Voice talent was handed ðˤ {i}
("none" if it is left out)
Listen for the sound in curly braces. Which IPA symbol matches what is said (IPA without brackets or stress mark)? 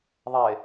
e